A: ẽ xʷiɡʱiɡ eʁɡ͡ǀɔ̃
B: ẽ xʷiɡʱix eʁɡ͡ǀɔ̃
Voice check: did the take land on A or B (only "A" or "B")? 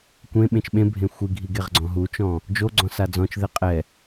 A